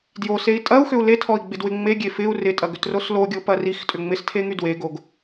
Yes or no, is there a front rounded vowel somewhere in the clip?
yes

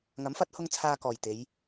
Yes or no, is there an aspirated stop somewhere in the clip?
yes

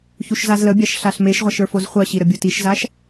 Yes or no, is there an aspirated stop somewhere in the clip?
no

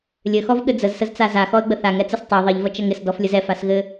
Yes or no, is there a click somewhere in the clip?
no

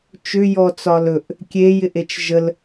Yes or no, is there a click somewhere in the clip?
no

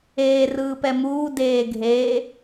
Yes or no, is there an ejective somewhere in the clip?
no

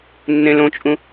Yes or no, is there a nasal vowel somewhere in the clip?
yes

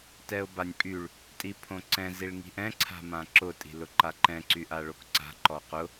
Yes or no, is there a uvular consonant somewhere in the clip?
yes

